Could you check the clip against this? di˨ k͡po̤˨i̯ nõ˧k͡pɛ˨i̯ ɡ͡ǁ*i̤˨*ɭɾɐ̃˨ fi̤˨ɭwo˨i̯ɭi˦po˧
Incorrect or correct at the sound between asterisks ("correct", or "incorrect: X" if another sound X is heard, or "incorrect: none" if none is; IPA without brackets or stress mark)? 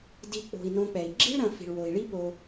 incorrect: i̤˦